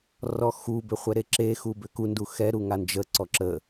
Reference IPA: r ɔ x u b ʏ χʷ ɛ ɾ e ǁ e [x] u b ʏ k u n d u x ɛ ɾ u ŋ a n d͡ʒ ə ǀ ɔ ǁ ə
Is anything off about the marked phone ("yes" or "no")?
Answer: no